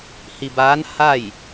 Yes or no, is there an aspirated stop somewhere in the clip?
no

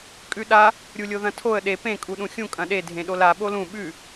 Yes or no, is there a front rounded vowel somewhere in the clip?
no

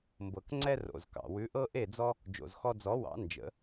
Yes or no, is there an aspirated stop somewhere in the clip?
no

